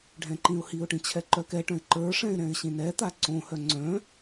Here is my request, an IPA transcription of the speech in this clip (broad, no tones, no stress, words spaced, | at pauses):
ɖʱɛ̃ǃĩʊ̯hiʊ̯ʈĩ t͡ɕʰɛǃœkɛʈœ̃ɪ̯ ǃə˞ʂɛ̃ɪ̯ ɾɛ̃ɪ̯ɕĩnɛt̪a ǀõhœ ŋ͡ǀœ̃